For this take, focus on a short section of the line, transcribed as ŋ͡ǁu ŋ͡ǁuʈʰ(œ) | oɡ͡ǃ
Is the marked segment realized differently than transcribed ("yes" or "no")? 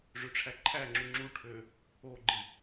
yes